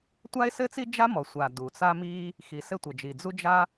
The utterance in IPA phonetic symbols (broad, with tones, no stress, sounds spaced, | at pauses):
tʷ a˥ ɪ̯ s ɘ˥ t͡s i˥ d͡ʒ a˥ m ɔ˩ sʷ a˩ d u˩ t͡s a˥ m i˥ | x i˩ s ɘ˥ tʷ ɘ˩ d͡ʒ i˩ d͡z u˥ d͡ʒ a˥